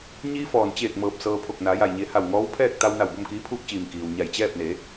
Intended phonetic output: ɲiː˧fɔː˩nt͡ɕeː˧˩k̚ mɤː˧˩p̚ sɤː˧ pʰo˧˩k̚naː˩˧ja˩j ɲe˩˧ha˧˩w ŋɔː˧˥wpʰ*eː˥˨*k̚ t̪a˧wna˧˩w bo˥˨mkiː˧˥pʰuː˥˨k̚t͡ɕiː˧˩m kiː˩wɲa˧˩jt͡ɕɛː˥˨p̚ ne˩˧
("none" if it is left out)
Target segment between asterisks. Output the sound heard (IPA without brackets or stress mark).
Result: ɛː˥˨